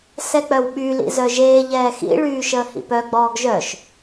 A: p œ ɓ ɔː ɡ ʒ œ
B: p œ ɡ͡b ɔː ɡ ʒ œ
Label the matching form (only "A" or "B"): B